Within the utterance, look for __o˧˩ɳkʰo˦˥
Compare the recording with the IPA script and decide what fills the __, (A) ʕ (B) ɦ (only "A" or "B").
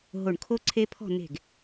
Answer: B